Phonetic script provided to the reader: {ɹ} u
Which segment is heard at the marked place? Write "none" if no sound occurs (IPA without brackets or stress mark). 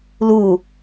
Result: l